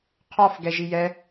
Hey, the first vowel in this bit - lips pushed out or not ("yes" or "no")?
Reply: yes